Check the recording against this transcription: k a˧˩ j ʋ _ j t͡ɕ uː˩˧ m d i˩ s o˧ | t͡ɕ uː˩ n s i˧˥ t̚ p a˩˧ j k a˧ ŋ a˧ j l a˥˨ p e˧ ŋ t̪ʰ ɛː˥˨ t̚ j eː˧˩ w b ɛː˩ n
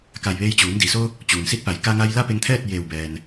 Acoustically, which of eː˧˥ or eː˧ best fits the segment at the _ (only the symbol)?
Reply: eː˧